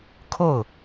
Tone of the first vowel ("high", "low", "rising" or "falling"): falling